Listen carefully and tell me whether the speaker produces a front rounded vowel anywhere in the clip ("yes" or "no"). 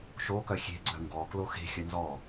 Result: yes